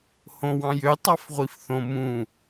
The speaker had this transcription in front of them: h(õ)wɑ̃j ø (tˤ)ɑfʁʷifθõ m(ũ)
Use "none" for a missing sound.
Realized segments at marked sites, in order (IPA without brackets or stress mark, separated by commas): õ, tˤ, ũ